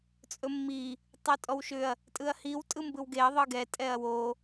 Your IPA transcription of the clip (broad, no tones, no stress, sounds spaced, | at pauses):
t͡sʼ ɵ mː i | tˤ o tʼ ɔ w ʃ ʏ ɐ̯ | tʼ ɯ ɐ̯ h i w tʼ ɯ m b ɯ w ɡ e ɐ̯ ðˤ ɯ ɡ ɛ tʼ ɛ ɐ̯ w o